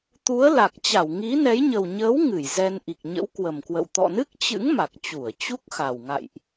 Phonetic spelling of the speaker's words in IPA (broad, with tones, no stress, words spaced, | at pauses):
t̪u˨˦ə̯la˨˩k̚ t͡ɕa˧˩wŋi˨˦nɛ˨˦j ɲə˨˩wɲəː˨˦w ŋɨ˧˩jzɛ˧n ʔi˨˩k̚ɲə̰˧˥wkwə˨˩mkwə̰˧˨w t̪ɔ̰˧˨nɨ˦˥k̚t͡ɕɨ̰˧˥ŋ ma˨˩k̚t͡ɕu˧˩ə̯ t͡ɕu˦˥k̚ xa˨˩w ŋa̰˧˨jʔ